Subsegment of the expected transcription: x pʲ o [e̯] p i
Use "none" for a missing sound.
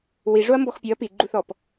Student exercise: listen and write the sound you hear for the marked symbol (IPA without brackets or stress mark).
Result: ɐ̯